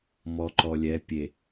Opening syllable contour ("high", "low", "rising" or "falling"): low